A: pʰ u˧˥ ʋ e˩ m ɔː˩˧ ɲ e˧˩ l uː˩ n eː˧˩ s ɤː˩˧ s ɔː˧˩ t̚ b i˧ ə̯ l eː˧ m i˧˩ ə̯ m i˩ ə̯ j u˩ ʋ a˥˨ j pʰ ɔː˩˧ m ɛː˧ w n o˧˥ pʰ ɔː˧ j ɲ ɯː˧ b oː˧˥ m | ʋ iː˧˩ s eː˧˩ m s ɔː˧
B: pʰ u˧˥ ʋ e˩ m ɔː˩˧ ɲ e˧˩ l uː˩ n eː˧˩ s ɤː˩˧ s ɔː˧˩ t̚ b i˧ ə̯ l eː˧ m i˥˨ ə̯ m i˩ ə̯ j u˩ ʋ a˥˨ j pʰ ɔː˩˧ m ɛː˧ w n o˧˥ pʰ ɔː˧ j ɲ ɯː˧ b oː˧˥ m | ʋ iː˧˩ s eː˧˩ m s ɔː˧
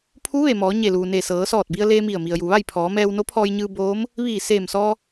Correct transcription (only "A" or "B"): A